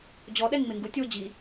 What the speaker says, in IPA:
d͡ʑ ɔ ɗ ɛ ŋ ŋ͡m ɪ ŋ ɡ u tʲ w ʊ d͡ʑ i

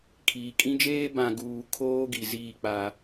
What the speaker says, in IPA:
kʰ iː˨ kʼ ĩ˦ d͡ʒ eː˦ b ã˨ ɡ uː˨ kʰ oː˦ ɡ i˨ z iː˦˨ k͡p a˦

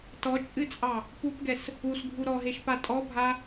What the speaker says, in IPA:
t ɔ t͡ʃʼ ɨ t͡sʼ ɑ | p u p ɡ ɛ s | u s ɡʱ u ɾ ɔ ɦ e ʃ p a tʼ ɔ bʱ a

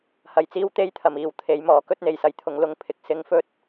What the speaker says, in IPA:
h ɐ˧ j t͡s iː˥ w t̪ e˥ j t̪ʰ ɐ˨ m iː˨˧ w t̪ʰ e˨˥ j m ɔː˨˥ k ɵ˥ t̚ n̪ e˨ j s ɐ˨˧ j t̪ʰ ʊ˨˧ ŋ l ʊ˧ ŋ pʰ ɪ˨ k̚ s ɪ˧ ŋ f ɵ˥ t̚

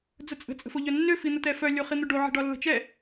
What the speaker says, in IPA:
d͡z ʊ t͡sʼ ə̤ t͡sʼ ə̤ f o ʎ œ nː ø f i n̪ ə t ɛ f œ lʲ o χ i n̪ ʊ ɖ o ʕ i̤ ɖ ɒ lː ə̤ t͡ʃ ɛ

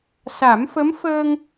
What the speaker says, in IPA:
s a˨˩˦ m f ə˧˥ m f əː˧ ŋ

